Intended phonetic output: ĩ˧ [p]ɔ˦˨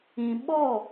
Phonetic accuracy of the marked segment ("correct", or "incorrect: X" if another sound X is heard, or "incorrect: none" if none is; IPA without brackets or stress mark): incorrect: ɓ